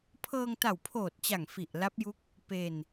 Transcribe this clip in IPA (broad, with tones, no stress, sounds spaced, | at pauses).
pʰ ɤː˧ ŋ t a˨˩ w pʰ oː˨˩ t̚ t͡ɕ a˨˩ ŋ f i˨˩ ʔ l a˦˥ p̚ j u˦˥ k̚ | p e˧ n